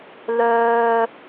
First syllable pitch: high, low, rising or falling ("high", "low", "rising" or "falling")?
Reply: high